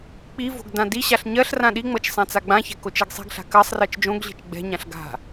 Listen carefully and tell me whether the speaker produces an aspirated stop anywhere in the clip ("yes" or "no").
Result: no